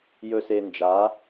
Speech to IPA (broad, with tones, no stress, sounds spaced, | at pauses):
j ɵ˨ s e˨ n d͡ʒ a˨˦